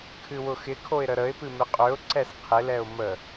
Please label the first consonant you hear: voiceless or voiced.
voiceless